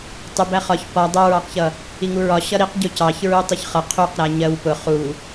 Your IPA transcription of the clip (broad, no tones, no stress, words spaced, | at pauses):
tˤʊbæ χɒç pɒ dˤʊɹɑqçʌ | iŋuɹɒ ɕʌɾiqɟʊ cɑçɹu tˤʊçχʌ qʰuq ɾæɲɜwpʊ χu